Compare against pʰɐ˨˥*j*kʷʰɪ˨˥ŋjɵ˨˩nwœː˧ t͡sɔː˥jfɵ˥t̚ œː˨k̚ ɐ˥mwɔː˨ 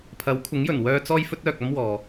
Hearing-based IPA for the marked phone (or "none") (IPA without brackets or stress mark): w